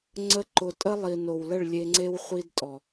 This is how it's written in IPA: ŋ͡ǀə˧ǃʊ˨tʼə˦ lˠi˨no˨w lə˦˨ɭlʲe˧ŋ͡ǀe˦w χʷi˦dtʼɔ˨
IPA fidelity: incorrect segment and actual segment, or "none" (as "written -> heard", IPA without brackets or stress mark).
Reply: none